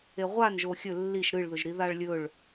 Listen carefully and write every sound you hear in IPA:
e ʁʷ a n ʒ o xʲ ɵ lː i ʃ ɾ ɨ ɭ ð ɵ ʒ ɾ i ð a ɭ lʲ ɵ ɭ

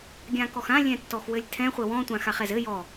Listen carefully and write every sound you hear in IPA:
ɡʲ ã k ɔ x ã lʲ ɛ̃ tː ɔ x w ɘ lʲ tʰ ɛ̃ χʷ ɘ w ɔ̃ tʷ ã x a χ ɛ z ɘ j ɔ

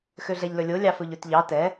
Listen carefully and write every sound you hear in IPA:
x ø ɮ ɛ ʎ l ɵ lʲ o lʲ ɑ f ɵ ʎ ø t ʎ ɑ t ɛ

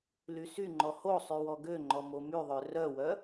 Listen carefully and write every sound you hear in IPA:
l y s y ŋ͡ǃ ɔ h o sˤ y w ɔ ɡ ø ŋ͡ǃ ɔ m o m y ðˤ ø r œ w œ

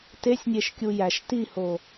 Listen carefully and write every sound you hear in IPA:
t e sʲ nʲ e ʃ kʲ u j æ ʃ t i h o

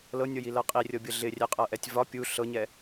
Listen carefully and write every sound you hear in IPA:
l ɤ nʲ ɤ j i l ɤ qʼ i rʲ ɤ bʲ ɤ ɮ ɪ rʲ ɛ qʼ ɤ ʔ ɛ tʲ v ɒ pʲ u ɬ ɤ ɲ ɛ

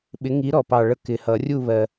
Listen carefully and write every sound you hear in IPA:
ɓ ɪ˨˥ ŋ i˨˥ ɾ ɔ˨ p ɑ˨ ɭ ə˨˥ k ɪ˨ h ʌ˨˩˦ rʲ u˦˨ β ɜ˨

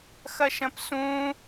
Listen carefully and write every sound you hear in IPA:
x ɐ ʃ ɐ̃ p s ũ

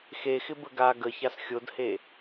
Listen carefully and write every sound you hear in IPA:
x e x ɪ b ə ɡ a ɡ ə ç a s xʲ o d h e

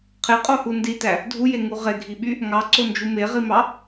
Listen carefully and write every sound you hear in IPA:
qʰ e qʼ o h u n d i t æ | dʱ u j e ŋ u ʁ e ɡʱ i ɓ y | ŋ ɑ ǀ o n d͡ʒ u m e ʁ i m ɑ

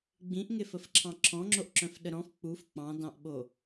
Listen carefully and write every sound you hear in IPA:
ɡ͡b ĩ ʔ ŋ e f ə f ǁʰ ɑ̃ ǁʰ ɔ̃ ŋ͡ǁ o ʔ ǁ œ̃ f ɗ ə ɾ ɔ̃ f k͡p u f k͡p ɑ̃ d ɑ̃ ʔ ɓ o

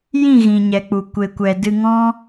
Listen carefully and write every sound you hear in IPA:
j ĩ˦˨ ɣ ĩ˨ ɲ ɛ˨ k͡p u˨ kʷ e˨ kʷ ɛ˨ d ɨ˧ ŋ ɔ̃˦

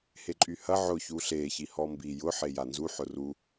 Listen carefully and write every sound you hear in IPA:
h e ǃʼ y h ɐ ʕ ʊ ç u ɬ e ç i h ɔ m b i j ʊ ħ e j a n z u ħ ʊ r u

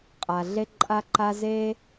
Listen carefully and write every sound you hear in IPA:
qʼ a˩ ɮ e˥ ǃʼ a˥ ǃ a˥ z e˥

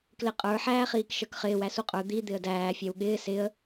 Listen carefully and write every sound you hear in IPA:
k l ɪ qʼ ə˞ ħ æː χ iː k ʃ ə˞ k χ ɪː w æ s u qʼ ə˞ d̪ i d̪ ɪ ə̯ d æː fʲ æ w ɠ ɪː s ɪ ə̯

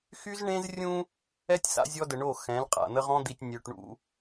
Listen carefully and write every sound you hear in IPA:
x y˦ z ɳ ẽ˦ z rʲ ũ˦ | ɛ˦ tʲ s a̰˦ zʲ ɔ˦ d ə˨ ɳ o˦˨ x ɛ̃˨˦ l qʼ a̰˨ n̪ ə˦ ʁ ɔ̃˦ d̪ i˨ tʲ nʲ ø˨ ʈ ɳ ṵ˦

